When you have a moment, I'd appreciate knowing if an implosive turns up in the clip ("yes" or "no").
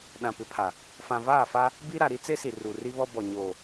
yes